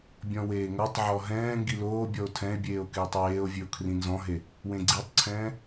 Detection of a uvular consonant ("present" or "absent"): absent